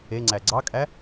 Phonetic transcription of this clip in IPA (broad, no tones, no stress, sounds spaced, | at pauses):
e ŋ͡ǀ æ ɡ͡ǀ ɑ kʼ æ